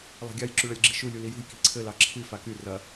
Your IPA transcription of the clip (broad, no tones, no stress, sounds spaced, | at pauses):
lˠ a̤ ɡʲ a j ǁ y ɭ ɐ lʲ ɡ͡ǁ i̤ ʃ u lʲ u l i j ṳ j k i̤ ǀʰ ɘ l ɑ ǁʰ i f a k y r ɐ